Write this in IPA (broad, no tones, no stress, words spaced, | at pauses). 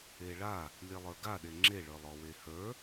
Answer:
eɭa | lʲelˠə˞ɡaɗe ŋ͡ǁeɭə˞lˠɔ wehə˞